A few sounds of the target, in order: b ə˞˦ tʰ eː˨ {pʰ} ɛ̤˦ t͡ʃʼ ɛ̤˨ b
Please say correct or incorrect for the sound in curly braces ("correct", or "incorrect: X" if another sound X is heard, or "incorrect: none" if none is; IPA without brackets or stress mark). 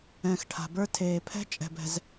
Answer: correct